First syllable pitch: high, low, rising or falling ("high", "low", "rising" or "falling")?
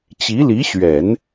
rising